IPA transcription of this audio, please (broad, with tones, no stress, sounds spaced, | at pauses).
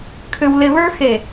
kʰ ʏ˧ w l ɪ˧ β ə˞˥ x e˧˩